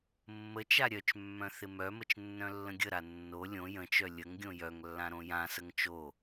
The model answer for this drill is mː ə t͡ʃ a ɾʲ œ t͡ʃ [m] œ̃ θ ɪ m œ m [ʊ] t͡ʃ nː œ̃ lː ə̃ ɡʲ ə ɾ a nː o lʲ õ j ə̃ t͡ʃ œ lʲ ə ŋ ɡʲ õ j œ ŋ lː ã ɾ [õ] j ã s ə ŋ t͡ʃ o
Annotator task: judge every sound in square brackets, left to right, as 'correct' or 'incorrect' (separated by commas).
incorrect, incorrect, correct